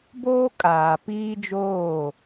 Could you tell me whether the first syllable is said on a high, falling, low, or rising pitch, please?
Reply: high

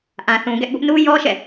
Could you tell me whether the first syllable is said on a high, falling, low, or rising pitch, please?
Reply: low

